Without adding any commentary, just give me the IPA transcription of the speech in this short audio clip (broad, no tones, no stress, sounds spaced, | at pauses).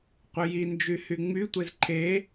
qʷ œ j i n d͡ʒ y h y ŋ͡m y tʷ e z ǃʰ e